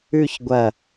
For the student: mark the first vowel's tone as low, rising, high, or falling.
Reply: falling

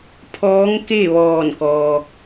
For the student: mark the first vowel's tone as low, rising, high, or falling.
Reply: rising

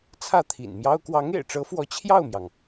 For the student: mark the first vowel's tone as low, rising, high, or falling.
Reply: falling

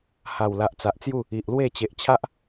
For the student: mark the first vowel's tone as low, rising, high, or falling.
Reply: low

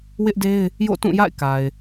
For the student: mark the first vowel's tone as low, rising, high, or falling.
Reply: high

